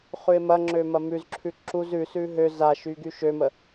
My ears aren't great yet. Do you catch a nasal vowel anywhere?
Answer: no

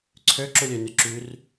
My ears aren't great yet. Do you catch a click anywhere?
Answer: yes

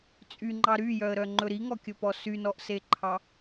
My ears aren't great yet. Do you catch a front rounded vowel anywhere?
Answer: yes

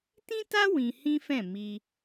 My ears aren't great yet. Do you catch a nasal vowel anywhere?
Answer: yes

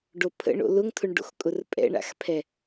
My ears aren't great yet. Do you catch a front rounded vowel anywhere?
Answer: no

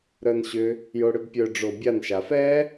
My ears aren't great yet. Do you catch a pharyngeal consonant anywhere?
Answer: no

